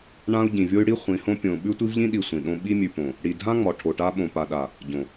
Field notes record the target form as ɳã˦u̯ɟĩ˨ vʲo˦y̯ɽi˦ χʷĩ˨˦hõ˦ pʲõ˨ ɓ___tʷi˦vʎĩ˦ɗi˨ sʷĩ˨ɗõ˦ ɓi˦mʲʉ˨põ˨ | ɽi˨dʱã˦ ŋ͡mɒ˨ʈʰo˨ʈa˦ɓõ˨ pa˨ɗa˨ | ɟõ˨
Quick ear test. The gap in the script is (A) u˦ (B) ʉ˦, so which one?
B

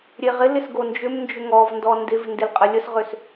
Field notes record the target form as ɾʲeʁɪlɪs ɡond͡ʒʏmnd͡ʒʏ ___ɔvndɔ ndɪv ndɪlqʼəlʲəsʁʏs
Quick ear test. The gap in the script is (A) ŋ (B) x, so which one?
A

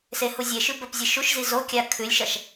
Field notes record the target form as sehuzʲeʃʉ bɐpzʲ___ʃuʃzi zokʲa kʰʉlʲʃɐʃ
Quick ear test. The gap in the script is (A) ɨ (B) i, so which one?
A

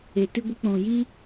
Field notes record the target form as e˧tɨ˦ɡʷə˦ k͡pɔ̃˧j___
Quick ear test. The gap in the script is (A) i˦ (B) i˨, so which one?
A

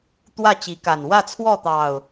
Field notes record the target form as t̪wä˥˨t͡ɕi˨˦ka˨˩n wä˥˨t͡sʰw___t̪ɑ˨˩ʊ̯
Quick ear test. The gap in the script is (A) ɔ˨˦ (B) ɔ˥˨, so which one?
B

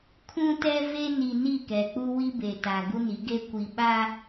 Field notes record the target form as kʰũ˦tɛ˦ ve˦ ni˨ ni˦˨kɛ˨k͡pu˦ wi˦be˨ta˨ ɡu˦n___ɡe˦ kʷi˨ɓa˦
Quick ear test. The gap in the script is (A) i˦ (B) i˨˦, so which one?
B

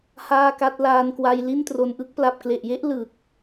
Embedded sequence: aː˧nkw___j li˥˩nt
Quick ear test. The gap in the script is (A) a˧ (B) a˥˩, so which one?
A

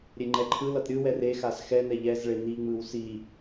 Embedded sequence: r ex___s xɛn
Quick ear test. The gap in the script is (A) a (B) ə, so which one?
A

